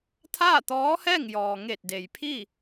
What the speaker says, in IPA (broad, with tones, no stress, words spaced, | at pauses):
t̪ʰaː˥˨t̪ɔː˧˥hɛː˥˨ŋ jɔː˩ŋe˧˩t̚de˩j pʰi˥˨